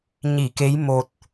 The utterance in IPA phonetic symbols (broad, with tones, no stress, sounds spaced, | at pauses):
ɲ i˧˩ k e˨˦ j m o˨˩ t̚